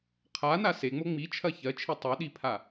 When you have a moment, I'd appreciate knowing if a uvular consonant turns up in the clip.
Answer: yes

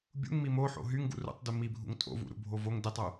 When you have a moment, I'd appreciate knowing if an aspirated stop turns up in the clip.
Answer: no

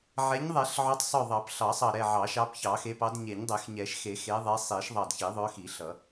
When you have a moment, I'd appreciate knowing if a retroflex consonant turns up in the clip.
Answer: no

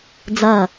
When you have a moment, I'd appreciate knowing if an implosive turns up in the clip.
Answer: no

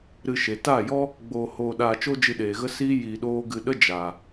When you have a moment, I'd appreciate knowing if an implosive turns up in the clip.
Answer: yes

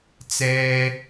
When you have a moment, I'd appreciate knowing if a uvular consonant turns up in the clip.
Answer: no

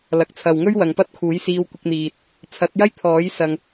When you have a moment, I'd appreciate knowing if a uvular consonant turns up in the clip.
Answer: no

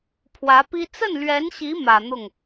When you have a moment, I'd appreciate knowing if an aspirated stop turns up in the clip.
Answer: yes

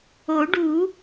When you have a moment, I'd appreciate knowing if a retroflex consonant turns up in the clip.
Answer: yes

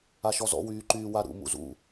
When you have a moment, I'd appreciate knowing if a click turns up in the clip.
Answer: yes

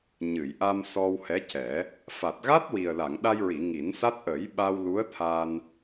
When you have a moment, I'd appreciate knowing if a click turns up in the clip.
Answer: no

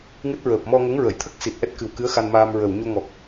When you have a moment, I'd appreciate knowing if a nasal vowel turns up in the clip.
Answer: no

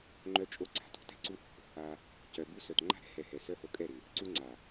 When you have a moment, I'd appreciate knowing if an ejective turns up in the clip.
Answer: yes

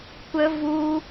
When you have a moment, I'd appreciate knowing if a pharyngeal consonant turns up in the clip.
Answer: no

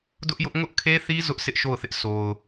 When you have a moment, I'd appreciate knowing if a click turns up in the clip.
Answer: no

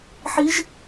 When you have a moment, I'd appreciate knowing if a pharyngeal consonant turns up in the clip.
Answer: yes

